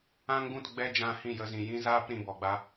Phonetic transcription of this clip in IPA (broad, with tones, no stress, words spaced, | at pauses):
ã˦ŋɡũ˦˨t ɡ͡bɛ˦d͡ʒã˧hĩ˦˨jə˧ zĩ˨jĩ˦zaː˦p ɾĩ˧bɔ˨ɡ͡ba˦